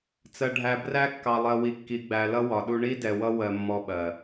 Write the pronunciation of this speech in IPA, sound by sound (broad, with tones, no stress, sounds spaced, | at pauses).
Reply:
t͡s ɜ˨ ɖʱ æ˨ b r æ˦ kː ɑ˨ lˠ ɜ˨ w i˨ kː i˨ ɡ͡b æ˨ l ʌ˦ w ɒ˨ ɗ u˦ ɳ i˦ d ɛ˨ w ʌ˦ w ɜ˦ mː ɔ˦ ɓ ɜ˨